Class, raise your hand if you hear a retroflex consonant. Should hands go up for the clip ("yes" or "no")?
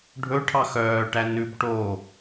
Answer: yes